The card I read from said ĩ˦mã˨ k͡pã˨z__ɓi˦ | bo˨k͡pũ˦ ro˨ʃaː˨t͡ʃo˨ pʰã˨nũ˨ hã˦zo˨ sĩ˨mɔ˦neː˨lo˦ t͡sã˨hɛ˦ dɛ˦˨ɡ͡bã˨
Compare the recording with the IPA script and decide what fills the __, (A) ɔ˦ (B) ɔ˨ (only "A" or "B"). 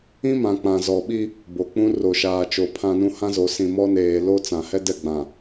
B